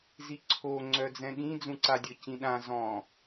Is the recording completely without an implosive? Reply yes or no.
no